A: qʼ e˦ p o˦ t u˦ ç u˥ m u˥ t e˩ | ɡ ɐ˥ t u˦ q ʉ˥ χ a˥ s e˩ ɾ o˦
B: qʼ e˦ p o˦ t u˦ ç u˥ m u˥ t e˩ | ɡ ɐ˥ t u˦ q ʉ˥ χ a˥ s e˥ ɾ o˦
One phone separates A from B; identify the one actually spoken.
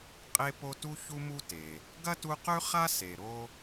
A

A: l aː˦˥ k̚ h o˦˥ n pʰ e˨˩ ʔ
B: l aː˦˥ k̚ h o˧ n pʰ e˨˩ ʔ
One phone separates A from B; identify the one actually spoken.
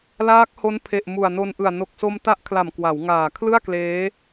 A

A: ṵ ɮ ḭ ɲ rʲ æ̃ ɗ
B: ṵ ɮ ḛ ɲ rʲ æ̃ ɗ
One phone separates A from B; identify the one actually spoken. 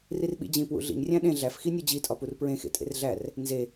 A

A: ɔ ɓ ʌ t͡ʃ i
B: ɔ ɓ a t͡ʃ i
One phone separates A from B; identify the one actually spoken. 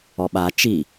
B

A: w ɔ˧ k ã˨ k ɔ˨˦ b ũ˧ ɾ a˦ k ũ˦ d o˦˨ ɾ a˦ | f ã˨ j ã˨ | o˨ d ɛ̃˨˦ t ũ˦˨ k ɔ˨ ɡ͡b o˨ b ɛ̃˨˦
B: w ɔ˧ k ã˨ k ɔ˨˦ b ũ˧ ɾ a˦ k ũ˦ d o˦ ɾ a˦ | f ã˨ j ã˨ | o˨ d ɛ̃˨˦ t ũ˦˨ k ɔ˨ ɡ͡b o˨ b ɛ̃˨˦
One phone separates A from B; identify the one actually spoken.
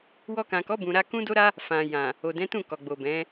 B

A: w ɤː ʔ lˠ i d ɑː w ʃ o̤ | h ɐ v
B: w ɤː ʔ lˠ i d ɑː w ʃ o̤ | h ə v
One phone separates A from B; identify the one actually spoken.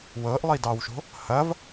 A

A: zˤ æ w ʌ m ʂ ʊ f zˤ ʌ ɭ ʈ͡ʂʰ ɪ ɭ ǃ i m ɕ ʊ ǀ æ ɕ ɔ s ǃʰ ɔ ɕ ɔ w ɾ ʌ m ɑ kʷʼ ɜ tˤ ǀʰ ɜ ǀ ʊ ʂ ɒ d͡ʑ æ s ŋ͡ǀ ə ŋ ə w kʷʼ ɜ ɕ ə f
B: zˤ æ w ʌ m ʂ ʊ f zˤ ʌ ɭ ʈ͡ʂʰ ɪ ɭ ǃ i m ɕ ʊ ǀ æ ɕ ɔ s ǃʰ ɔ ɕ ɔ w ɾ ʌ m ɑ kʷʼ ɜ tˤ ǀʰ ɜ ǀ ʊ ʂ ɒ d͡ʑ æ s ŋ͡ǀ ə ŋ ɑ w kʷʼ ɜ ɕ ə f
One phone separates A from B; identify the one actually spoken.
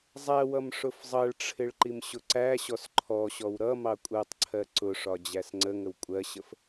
A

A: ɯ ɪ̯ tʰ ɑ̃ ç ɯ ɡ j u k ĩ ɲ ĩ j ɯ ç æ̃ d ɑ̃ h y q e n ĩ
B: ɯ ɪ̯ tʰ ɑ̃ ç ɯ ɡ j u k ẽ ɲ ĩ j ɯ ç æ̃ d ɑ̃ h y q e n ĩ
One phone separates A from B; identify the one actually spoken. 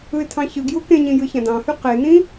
B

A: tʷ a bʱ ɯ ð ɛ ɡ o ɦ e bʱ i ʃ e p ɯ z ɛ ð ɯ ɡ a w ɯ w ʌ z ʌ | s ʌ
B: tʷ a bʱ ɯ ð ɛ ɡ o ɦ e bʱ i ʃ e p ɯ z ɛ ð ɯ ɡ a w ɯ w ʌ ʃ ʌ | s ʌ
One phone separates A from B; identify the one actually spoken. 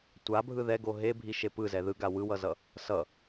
A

